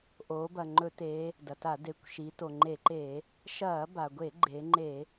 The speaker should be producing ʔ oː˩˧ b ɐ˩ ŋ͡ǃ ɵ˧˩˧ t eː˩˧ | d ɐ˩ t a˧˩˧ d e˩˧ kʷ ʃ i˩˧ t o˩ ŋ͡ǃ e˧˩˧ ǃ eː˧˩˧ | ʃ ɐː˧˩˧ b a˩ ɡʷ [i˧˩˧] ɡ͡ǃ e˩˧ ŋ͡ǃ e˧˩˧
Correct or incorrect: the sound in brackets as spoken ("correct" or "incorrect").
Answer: incorrect